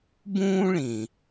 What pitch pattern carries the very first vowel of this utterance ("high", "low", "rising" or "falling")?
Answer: high